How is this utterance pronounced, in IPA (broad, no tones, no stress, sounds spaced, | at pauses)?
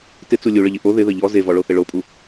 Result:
t ɪ t͡s u lʲ u ɭ ə ʎ ɪ ʔ o ð ɪ ð ə ʎ ɔ z e v ɔ ɭ o θ ɪ ɭ o pʼ u